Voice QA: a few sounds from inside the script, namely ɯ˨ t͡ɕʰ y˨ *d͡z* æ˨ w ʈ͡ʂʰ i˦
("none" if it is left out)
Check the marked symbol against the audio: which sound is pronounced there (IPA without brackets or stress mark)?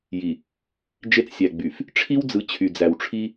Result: d͡z